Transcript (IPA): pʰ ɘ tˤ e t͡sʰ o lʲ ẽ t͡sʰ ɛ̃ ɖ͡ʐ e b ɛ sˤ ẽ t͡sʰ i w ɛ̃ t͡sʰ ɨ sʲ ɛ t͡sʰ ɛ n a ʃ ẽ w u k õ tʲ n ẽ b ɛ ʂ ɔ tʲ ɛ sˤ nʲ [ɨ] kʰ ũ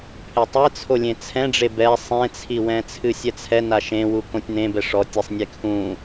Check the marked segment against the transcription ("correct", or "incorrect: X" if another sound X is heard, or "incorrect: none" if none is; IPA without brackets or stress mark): incorrect: e